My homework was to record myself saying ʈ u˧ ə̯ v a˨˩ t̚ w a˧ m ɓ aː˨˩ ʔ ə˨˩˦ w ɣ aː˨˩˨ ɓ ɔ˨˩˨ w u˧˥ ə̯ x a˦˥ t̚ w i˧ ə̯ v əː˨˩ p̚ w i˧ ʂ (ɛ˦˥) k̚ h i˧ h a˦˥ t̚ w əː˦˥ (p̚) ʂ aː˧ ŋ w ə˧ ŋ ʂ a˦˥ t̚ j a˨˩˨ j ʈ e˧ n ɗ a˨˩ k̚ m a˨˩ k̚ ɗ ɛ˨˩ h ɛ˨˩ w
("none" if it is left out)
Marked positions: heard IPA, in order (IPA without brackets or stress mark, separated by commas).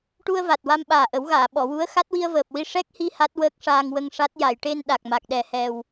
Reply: ɛ˦˥, k̚